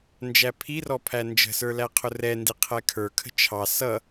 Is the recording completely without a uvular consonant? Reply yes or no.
no